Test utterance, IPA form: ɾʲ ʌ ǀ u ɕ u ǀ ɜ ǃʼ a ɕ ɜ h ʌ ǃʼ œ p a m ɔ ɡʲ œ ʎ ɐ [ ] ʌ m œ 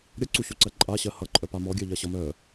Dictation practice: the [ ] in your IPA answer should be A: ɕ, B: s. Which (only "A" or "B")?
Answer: A